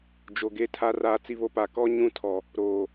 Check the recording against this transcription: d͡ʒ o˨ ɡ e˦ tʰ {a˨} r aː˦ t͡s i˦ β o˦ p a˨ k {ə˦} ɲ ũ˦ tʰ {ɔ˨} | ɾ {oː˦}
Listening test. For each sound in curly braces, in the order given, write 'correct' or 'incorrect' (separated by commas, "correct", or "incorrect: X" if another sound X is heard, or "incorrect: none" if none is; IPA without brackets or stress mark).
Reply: incorrect: a˦, incorrect: ɔ˦, correct, incorrect: oː˨